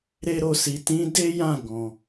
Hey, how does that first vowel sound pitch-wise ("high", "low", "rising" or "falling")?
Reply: high